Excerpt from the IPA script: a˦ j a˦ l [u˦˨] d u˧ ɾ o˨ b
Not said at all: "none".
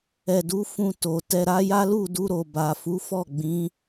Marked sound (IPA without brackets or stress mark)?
u˦˨